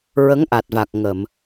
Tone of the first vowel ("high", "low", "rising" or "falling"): rising